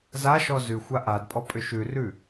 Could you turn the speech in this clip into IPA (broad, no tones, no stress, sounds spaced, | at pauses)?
z a ʃ ɔ z ʉ xʷ a ʔ a d pʼ ɔ pʼ ʏ ʃ ʉ r ʉ